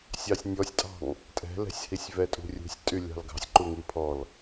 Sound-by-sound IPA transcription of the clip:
sʲ ɑ sʲ nʲ ɔ sʲ tʼ ɑ̤ ŋ | tʼ ɛ̤ l ɛ̤ sʲ h i sʲ v ɛ tʼ ṳ rʲ ṳ sʲ tʼ y lʲ ɑ̤ l ɡ ɑ̤ sʲ ǃ u ŋ i pʰ ɔ l

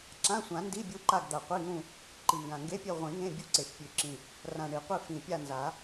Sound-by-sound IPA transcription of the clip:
ǁ ã˧˥˧ sʷ ã˨˩˦ n d i˧˥˧ bʲ u˦˨ ǃ a˦˨ ɡ d̪ a˨˩ qʷ i˧˥˧ ŋ ũ˦˨ | ǃ i˨˩ ŋ ɡ ã˨˩ ŋ ɡ e˧˥˧ pʲ e˦˨ ʁʷ ĩ˨˩˦ ŋ ẽ˧˥˧ bʲ u˦˨ ǀ e˨˩ ʃ pʲ ʉ˨˩˦ ǁ ĩ˨˩ | r ã˨˩ ɳ i˨˩˦ qʷ i˦˨ f ĩ˨˩ pʲ a˦˨ n z a˨˩˦

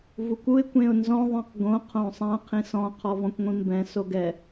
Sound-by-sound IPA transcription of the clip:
v u kʷ u ɪ̯ kʷ ẽ ʊ̯ n z ɔ̃ ðˤ ɛ̃ q ɡ õ qʰ õ sˤ ã qʰ ĩ s ɔ̃ qʰ ɔ v ɔ̃ kʷ ŋʷ ĩ m b ɛ̃ s o ɡ ɛ

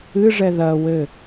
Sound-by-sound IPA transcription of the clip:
ɨ ʐ ɛ ð ɐ w ɘ

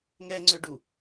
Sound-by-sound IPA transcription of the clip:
ŋ ɛ ŋ͡ǀ ø ɖ u

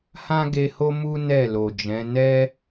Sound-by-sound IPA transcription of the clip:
h ã˦ ɡ e˧ h o˦ m u˦ n ɛ˦˨ l o˨ d͡ʒ ɛ̃˨˦ n ɛ˦

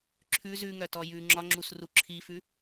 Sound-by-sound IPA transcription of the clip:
ǁʰ ʉ z ʉ ŋ œ t ɔ j ʉ ŋ͡ǁ ɒ ŋ͡ǁ u s r u ǁʰ i f ʉ

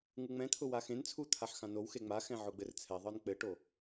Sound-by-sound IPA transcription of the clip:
ŋ u ŋ͡m ɛ̃ t̪ʰ ʊ w a x ẽ n t͡sʰ u t̪ʰ a ħ x ã n o w x e ŋ͡m a x ɛ̃ ʕ ʊ ɡ͡b ɘ r t͡sʰ ɛ ðˤ ə˞ n k͡p ɘ ʈ o

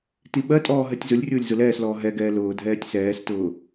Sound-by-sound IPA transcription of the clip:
t i ɓ ɜ tʼ ɔː ɦ ɜ tʲ z ʊ lʲ rʲ ʊː lʲ z ʊ l ɛː s l ɔː ɦ ɛ ɡ ɛː l ʊː dʱ ɛː tʲ s ɛː s t ʊː

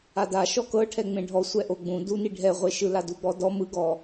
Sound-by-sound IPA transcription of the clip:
a d a ʃ ɔ k ɤ ʈʰ ɛ ŋ͡m ẽ ɖʱ ɔ sʷ ɛ ʔ o ɡ͡b ũ d u n i ɖʱ ɛ ʁʷ e ʃ ɯ l a d u ɡ͡b ɔ d ɔ m ɯ ɡ ɔ

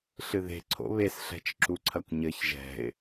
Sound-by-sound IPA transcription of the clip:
ɬ ɨ ð e̤ ǀʰ o̰ β e s ɬ ɛ̤ t͡ʃ ǁ u ǀʰ ɐ kʷ ɲ ɘ ç ʒ ɛ̤ ɪ̯

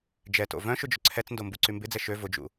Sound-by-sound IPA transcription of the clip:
d͡ʒ ɛ t o̰ v œ̃ ʃ ʊ d͡ʒ ʏ ǀʰ ɛ t͡s n d o m b u ǀ y m b ɪ d͡z ɛ ʃ ø v ʊ d͡ʒ ṵ

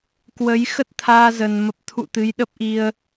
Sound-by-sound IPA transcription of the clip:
k w ə˨˦ j x ə˦˥ t̚ t̪ʰ aː˧ z ə˨˩ n m ə˨˩ p̚ t̪ʰ ṵ˧˨ t̪ ɨ˨˦ j ɗ ə˦˥ p̚ ʔ i˧ ə̯

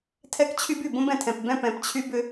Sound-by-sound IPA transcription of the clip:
tʰ ɛ˦ k t͡ɕʰ y˦ b y˨ b õ˦ b ɛ̃˨ tʰ ɛ̃˨ p b ɛ̃˦ p ɛ̃˨ p t͡ɕʰ y˦ b ʏ˦

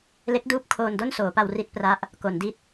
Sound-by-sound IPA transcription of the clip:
l e˦˥ k̚ d uː˦˥ p̚ kʰ oː˧ n d o˥˩ n s oː˩˦ p a˧ w r i˥˩ t̚ p r a˦˥ ʔ | k o˩˦ n d i˦˥ t̚

